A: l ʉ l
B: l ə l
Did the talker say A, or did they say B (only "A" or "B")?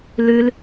A